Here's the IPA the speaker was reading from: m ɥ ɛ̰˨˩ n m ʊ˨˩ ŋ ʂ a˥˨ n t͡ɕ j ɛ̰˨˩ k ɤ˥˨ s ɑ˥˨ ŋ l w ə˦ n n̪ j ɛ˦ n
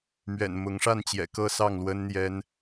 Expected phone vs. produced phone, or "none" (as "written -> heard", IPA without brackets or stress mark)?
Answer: ʊ˨˩ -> ʊ˨˦